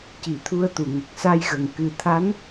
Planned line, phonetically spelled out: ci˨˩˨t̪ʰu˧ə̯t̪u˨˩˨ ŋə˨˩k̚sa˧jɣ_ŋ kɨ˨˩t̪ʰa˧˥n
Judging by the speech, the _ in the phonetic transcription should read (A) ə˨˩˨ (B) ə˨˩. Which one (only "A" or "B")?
B